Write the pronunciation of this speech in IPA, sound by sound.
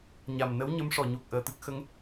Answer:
ɲ a˨˩ m n ə˧˥ w ɲ ə˧˥ m ʂ ɔ˨˩˨ ɲ u˨˩ k̚ ʔ əː˨˩ t̪ ɨ˦˥ k̚ x ə˧˥ ŋ

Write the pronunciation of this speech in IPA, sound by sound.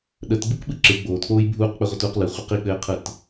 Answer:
ɗ ə t ɡ͡b ɯ k ɓ ɯ ǁ ɯ ɡ͡b oː t k͡p oː j bʱ uː q k͡p ɘ ʁʷ ə t uː q l ɯ χʷ ɘ q i k͡p ɘː qʰ ɯ t

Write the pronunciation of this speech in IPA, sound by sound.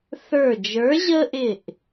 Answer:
θ ə˞˧˩ d͡ʒ ə˞˨˥ ʑ ə˦ ʔ ɪ˧˩ ʔ

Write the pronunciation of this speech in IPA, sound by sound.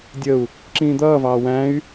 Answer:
dʲ ə u̯ | ǁ ĩː d̪ ʌː v ɑː w æ̃ y̯

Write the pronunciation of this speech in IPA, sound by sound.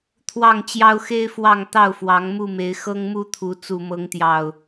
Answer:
t̪ʰ w ɑ˥˨ ŋ t͡ɕ j ɑ˦ ʊ̯ x e˦ ɪ̯ f w ɑ˥˨ ŋ t̪ ɑ˥˨ ʊ̯ f w ɑ˨˦ ŋ m u˥˨ m e˨˦ ɪ̯ x ɤ˦ ŋ m u˥˨ t̪ʰ u˨˦ t͡s u˨˩ m ɤ˨˦ ŋ t̪ j ɑ˨˩ ʊ̯

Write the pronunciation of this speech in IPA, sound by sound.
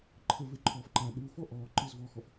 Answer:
ǃʰ ə v e ǃʰ ɔː f ǃ a ɗ u f ɔ ʔ ɔː ǃ ɨ z v ɔː x ɔ f

